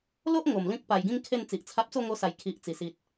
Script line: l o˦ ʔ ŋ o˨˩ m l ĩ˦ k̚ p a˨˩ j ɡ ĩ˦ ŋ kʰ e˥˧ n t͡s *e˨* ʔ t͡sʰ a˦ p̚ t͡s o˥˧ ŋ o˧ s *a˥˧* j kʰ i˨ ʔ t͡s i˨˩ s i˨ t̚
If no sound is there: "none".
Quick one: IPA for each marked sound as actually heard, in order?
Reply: i˨, a˨˩

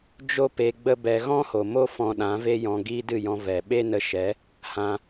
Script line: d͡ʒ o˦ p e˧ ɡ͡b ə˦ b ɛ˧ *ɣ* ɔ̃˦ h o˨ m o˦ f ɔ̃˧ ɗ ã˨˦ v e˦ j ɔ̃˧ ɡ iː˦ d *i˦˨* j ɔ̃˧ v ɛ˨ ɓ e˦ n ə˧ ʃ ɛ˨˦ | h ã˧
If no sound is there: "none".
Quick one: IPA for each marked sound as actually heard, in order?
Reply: ɣ, ɨ˦˨

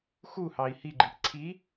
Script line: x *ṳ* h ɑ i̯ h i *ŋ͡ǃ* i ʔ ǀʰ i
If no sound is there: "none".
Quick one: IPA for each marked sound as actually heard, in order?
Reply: u, ɡ͡ǃ

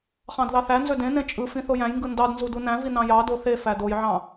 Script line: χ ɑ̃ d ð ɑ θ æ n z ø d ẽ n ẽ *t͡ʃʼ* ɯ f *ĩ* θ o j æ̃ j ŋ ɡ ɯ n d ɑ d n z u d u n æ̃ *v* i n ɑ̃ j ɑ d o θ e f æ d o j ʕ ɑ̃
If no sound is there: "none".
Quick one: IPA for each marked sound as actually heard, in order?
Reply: t͡ʃʼ, ĩ, v

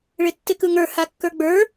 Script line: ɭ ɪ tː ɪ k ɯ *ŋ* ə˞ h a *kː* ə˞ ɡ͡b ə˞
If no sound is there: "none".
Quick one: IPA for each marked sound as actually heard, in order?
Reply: ŋ, kː

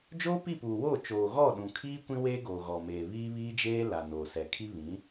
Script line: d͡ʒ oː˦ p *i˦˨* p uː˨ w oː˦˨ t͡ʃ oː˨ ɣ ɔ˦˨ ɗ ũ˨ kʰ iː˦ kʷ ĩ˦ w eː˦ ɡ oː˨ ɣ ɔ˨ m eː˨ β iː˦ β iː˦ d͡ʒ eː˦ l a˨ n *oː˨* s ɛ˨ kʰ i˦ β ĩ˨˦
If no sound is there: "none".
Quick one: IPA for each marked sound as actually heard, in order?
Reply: i˦˨, oː˨

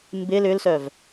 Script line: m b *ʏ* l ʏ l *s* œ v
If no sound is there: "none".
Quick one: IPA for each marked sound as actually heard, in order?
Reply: ɪ, s

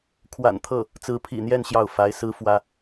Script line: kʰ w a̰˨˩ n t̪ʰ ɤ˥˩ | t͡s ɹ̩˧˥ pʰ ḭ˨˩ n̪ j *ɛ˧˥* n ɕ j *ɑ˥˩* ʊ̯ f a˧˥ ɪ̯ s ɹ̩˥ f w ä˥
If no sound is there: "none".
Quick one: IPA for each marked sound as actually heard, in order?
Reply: ɛ˥˧, ɑ˥˩

